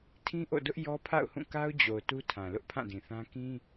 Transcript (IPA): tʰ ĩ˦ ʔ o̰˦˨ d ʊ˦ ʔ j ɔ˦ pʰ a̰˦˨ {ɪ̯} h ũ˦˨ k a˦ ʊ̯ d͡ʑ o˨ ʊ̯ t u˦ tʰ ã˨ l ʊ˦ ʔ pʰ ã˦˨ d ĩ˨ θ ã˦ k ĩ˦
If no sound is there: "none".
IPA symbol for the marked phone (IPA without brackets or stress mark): ʊ̯